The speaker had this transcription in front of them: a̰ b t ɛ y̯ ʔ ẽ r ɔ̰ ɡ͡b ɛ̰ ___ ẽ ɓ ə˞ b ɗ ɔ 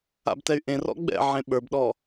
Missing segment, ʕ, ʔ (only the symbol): ʕ